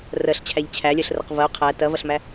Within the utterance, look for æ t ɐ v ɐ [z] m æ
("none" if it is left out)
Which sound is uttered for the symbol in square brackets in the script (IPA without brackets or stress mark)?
ɬ